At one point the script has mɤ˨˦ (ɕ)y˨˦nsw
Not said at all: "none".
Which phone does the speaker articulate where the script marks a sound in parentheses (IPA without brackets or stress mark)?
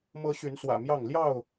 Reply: ɕ